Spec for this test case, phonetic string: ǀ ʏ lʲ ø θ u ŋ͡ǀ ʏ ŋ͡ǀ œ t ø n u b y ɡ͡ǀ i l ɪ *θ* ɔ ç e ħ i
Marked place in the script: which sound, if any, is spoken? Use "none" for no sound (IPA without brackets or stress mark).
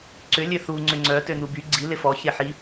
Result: f